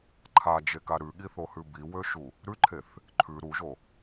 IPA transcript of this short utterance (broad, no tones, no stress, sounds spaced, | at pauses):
ǃʰ a d͡ʒ e k a ɾ ʉ ɠ i θ o h ʉ b i w ø ʃ u | ɾ ʉ ǃʰ e θ | ǃʰ ʉ ɾ u ʒ o